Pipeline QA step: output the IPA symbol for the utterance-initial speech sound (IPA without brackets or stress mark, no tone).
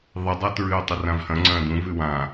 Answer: ðˤ